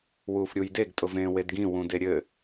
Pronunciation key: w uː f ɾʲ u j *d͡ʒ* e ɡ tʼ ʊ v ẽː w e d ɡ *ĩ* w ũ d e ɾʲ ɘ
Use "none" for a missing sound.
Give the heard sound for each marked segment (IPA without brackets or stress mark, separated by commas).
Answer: d, ĩ